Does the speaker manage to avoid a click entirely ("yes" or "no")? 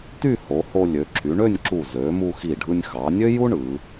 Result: no